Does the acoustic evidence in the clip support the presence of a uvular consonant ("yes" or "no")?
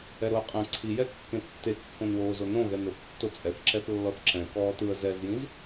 yes